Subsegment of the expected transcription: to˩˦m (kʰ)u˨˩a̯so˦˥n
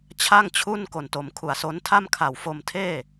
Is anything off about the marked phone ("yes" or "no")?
no